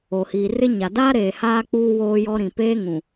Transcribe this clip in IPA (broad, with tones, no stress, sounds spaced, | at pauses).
o˨ h iː˨ r ɪ˦ ɲ a˨ d aː˦ ɾ eː˨ h aː˦ k͡p uː˦ w oː˦ j ɔ˦ ɾ ĩ˨ p eː˦ ŋ ũ˨